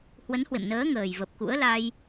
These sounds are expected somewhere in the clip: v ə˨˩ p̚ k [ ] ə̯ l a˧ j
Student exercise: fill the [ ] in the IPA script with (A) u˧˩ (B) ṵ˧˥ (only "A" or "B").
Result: B